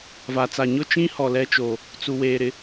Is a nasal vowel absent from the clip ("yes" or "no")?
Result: no